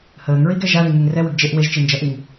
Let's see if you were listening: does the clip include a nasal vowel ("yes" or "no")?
no